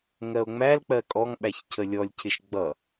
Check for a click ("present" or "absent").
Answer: absent